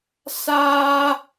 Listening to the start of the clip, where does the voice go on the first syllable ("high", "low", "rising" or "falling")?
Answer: high